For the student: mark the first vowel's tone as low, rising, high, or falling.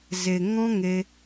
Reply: low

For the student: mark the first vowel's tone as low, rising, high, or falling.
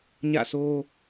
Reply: falling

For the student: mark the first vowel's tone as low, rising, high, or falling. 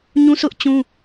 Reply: high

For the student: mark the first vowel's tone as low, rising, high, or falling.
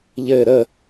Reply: falling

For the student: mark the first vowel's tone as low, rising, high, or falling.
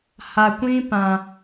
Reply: low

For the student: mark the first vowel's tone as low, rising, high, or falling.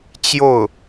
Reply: falling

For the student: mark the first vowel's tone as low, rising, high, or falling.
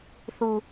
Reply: low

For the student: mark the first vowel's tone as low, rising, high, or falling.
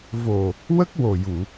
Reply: low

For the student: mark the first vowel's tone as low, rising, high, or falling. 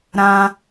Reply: high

